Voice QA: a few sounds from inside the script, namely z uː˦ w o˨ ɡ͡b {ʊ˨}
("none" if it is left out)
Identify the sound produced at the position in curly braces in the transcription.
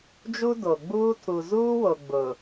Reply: ʊ˨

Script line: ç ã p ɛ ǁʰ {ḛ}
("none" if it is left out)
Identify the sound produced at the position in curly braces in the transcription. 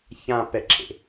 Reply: ḛ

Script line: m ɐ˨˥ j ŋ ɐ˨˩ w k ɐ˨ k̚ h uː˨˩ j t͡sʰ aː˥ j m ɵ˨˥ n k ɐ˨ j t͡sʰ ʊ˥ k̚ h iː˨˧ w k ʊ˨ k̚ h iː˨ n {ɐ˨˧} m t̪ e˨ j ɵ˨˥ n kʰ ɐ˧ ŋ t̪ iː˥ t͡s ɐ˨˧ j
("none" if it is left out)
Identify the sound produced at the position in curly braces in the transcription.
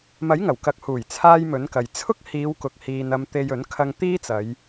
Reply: ɐ˨˧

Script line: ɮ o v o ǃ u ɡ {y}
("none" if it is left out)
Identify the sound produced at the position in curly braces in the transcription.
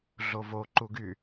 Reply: y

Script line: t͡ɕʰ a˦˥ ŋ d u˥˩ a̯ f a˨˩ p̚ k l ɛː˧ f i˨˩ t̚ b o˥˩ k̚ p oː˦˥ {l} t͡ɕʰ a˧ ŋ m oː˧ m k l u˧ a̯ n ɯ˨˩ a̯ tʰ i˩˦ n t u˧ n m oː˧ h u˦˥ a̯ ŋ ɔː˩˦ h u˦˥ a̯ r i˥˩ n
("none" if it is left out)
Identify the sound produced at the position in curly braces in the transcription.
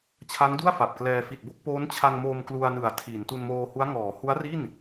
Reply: n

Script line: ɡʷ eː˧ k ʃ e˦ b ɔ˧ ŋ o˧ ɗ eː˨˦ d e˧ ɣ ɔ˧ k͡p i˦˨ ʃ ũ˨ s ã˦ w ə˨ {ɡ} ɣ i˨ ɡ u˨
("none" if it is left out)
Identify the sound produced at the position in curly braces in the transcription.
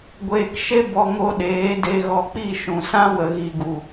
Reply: none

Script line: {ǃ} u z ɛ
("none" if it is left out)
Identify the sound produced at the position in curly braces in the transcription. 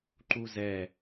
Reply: ǃ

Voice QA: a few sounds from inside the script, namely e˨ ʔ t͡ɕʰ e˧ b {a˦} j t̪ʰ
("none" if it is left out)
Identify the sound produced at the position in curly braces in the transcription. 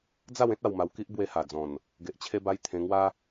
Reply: a˧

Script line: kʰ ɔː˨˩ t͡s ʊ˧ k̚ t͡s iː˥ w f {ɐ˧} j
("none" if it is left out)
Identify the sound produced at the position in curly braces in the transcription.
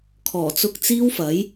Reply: ɐ˨˥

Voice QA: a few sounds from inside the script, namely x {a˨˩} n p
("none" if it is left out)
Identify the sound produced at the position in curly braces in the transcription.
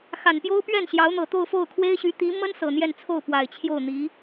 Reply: a˨˩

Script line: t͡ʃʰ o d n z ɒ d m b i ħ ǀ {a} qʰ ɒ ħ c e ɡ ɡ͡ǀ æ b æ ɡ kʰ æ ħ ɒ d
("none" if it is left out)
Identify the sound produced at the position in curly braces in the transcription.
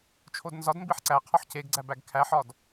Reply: æ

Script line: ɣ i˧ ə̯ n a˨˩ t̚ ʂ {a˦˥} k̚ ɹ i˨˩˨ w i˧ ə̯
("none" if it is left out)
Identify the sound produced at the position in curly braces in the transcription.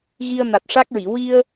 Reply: a˦˥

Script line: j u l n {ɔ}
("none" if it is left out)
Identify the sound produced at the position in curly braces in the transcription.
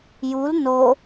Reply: o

